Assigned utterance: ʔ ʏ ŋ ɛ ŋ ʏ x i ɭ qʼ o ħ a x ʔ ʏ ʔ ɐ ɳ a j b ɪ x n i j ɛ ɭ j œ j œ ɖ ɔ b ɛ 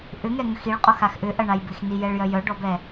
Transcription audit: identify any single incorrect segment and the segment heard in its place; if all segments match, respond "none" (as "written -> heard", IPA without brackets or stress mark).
ħ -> x